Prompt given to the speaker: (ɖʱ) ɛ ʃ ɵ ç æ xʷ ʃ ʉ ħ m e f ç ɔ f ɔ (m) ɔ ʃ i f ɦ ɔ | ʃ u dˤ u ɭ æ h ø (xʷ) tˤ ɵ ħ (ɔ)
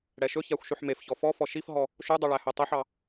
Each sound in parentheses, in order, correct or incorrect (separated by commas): incorrect, incorrect, incorrect, incorrect